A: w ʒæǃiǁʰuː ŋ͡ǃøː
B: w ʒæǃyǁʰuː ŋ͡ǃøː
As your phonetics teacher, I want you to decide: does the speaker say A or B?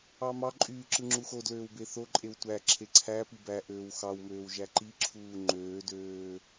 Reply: A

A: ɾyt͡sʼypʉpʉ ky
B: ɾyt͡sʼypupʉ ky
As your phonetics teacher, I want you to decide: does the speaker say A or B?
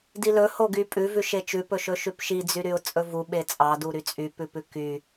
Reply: A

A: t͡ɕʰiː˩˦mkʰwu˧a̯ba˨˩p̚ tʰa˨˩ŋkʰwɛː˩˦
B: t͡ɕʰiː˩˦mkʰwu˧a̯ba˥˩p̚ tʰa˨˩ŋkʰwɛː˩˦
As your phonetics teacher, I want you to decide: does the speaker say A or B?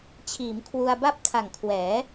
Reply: B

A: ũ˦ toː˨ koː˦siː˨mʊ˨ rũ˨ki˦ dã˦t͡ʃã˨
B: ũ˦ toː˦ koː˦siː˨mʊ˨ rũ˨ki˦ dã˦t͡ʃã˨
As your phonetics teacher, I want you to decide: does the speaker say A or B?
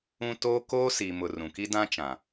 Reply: B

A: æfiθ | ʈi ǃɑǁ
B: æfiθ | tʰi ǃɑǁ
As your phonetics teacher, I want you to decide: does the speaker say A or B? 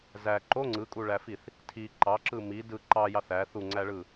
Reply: B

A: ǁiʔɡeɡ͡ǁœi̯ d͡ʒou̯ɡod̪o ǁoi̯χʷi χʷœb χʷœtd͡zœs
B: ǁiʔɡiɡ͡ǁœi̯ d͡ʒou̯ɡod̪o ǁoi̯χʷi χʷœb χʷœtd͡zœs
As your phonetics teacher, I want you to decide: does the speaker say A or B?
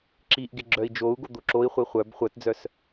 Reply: A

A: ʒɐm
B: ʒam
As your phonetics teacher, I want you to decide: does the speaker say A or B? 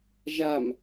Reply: B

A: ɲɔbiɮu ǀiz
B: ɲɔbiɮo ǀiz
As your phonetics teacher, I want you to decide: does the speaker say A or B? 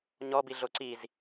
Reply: B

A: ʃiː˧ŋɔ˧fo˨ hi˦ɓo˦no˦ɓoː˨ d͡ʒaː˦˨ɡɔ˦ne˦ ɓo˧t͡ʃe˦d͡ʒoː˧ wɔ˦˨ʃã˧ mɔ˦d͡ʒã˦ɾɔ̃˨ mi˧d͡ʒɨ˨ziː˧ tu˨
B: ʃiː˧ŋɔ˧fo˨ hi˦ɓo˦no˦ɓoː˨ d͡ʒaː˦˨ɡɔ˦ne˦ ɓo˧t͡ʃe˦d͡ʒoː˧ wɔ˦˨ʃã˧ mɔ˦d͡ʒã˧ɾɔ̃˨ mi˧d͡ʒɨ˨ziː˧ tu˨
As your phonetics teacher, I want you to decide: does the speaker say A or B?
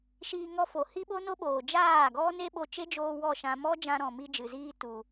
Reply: B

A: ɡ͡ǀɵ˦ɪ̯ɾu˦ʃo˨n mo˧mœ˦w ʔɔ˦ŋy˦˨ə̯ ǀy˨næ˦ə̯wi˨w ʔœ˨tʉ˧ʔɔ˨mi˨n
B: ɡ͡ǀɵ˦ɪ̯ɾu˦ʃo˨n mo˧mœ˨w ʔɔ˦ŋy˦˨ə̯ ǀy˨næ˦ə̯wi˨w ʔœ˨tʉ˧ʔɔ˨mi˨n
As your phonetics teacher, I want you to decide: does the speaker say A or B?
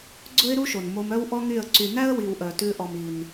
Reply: A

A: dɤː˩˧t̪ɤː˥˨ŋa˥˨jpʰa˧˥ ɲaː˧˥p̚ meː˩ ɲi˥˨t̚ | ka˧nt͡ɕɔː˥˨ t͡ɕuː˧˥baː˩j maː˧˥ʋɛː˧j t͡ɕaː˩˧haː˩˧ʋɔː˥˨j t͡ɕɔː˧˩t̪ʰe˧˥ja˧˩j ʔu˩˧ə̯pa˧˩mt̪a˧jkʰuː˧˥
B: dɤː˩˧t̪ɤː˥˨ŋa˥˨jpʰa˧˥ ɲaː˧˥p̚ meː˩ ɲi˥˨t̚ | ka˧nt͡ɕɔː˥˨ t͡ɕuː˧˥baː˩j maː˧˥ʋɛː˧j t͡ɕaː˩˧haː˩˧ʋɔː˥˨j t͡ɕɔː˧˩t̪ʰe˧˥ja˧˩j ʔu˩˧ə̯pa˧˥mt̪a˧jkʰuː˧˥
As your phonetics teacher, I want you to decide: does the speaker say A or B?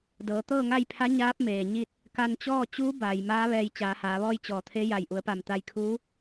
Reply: A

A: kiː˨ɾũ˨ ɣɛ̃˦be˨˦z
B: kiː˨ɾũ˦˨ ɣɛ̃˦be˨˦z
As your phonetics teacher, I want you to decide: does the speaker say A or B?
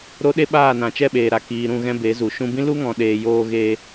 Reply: B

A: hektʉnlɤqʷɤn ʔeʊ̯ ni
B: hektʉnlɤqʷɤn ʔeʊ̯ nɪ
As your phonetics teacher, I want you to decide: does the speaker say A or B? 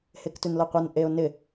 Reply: B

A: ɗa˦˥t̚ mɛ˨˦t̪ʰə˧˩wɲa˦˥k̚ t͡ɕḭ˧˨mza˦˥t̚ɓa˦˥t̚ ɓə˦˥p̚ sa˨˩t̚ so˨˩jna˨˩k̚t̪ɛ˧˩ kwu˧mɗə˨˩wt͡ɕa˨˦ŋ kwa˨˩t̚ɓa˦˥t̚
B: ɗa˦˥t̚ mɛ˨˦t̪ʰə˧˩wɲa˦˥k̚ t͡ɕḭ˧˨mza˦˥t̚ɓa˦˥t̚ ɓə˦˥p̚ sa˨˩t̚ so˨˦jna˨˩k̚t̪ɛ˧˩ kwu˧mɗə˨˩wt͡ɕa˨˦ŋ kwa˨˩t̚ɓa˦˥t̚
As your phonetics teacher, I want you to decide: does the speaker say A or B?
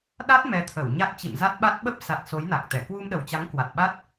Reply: B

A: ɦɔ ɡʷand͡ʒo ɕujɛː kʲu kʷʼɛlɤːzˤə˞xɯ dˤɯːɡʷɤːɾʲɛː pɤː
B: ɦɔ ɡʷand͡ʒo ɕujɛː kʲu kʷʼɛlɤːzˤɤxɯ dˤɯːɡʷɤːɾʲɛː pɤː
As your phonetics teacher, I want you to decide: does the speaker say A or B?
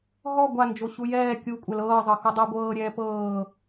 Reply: B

